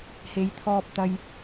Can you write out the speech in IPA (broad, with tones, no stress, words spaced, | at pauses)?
he˨˧jt̪ʰɔː˧p̚ t̪ɐ˧j